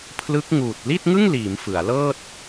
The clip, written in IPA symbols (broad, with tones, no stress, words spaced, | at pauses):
pʰlɯ˦˥k̚ ŋuː˨˩t̚ li˥˩t̚ŋɯ˥˩ŋliː˩˦m fɯ˩˦a̯lɤː˥˩t̚